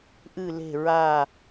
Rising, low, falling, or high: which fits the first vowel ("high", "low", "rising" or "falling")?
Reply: falling